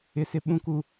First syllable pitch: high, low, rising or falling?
low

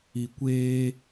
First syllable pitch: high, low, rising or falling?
low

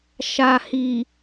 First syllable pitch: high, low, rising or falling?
low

